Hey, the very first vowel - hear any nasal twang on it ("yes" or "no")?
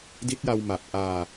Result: no